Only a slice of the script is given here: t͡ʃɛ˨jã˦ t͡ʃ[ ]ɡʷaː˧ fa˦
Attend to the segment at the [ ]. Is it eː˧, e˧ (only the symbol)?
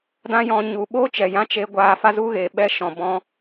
e˧